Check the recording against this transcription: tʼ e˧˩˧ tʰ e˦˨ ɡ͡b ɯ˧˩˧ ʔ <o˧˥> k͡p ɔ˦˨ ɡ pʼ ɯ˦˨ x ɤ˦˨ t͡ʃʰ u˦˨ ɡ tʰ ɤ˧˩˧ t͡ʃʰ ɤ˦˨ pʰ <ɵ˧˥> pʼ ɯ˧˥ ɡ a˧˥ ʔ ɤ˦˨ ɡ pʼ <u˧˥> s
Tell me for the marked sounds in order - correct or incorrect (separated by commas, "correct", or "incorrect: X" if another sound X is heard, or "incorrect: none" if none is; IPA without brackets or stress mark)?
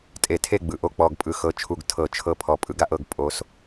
incorrect: o˦˨, incorrect: ɔ˧˥, incorrect: o˧˥